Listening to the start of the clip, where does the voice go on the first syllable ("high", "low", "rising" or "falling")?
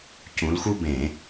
rising